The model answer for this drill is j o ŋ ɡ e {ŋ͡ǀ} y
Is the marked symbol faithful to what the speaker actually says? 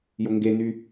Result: no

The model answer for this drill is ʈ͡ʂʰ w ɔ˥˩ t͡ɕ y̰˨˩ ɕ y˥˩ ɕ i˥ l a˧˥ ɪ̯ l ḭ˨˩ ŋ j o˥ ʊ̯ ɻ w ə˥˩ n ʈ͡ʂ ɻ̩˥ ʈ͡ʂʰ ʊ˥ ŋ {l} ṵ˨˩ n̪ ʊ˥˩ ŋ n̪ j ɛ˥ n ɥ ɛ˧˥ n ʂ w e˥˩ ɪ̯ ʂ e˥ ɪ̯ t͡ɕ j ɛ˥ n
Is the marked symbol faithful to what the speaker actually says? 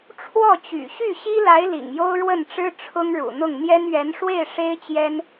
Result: no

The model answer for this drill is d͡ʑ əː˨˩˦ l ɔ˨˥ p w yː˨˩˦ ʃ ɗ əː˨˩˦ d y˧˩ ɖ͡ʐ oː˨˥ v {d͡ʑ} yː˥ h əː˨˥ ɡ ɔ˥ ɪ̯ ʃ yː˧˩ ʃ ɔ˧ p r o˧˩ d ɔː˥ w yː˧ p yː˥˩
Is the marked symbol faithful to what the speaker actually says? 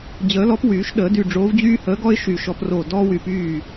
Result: yes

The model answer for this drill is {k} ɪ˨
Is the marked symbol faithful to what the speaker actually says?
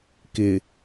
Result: yes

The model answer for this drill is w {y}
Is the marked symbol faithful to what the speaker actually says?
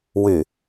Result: yes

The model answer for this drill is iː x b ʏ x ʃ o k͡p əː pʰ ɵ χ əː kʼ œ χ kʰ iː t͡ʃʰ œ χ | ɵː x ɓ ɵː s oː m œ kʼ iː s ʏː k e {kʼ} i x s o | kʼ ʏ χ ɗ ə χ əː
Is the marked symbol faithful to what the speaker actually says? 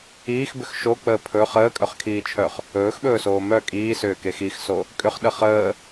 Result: no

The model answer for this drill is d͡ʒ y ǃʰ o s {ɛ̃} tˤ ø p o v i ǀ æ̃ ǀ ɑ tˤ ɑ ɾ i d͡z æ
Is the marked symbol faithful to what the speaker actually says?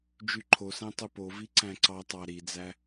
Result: no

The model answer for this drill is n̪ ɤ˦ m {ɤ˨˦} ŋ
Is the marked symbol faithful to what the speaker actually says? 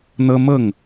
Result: no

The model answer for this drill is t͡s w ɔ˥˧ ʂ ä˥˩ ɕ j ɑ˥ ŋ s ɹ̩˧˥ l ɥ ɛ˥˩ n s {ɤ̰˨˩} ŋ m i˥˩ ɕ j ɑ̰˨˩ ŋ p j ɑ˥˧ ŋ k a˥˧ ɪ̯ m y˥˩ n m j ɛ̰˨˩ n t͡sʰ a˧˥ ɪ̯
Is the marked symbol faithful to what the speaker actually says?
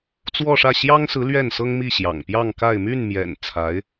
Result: no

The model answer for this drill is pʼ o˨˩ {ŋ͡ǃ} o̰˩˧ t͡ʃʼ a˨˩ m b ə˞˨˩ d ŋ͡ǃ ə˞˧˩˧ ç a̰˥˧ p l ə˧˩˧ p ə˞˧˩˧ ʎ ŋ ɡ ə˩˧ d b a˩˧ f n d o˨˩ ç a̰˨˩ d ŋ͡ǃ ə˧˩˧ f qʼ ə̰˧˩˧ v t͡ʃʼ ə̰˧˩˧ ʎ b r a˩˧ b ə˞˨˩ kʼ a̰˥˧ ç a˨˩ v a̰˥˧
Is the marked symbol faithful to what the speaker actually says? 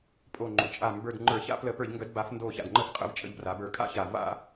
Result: yes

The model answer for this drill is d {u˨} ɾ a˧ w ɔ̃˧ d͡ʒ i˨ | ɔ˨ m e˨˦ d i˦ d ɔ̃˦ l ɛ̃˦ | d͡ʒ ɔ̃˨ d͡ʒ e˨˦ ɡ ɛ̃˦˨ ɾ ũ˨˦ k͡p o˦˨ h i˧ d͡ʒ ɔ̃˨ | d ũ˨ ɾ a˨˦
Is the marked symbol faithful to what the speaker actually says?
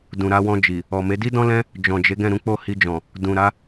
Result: no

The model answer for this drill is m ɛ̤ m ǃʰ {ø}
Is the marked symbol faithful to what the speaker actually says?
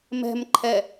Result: no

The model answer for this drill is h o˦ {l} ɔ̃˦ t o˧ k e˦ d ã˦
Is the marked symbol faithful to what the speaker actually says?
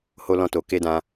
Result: yes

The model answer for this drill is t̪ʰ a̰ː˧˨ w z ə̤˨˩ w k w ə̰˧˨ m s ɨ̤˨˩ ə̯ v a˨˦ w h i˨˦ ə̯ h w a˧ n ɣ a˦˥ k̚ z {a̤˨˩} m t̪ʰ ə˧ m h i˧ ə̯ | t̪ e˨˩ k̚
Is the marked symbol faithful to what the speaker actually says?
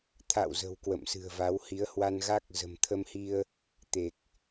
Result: no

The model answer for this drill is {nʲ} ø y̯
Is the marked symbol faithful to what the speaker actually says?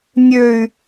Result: yes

